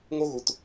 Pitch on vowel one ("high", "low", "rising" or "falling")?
high